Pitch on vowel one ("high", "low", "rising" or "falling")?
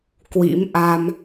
rising